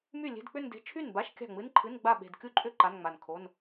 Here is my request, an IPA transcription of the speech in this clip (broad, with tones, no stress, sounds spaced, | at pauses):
m y˥˩ lʲ e̤˧˥˧ d k͡p ʏ˥˧ n d e̤˧˥˧ t͡ʃʰ y˥˩ n b a˧˥˧ ʃ kʲ a̤˥˩ ŋ͡m ɨ˧˥˧ n ǃʰ ɨ˧˥˧ n ɡ͡b a˥˩ ɓ e̤˧˩ d kʲ u˥˩ ǃʼ ʏ˥˧ ǃ a˧˥˧ n ŋ͡m a˧˩ n kʰ o˧˥˧ n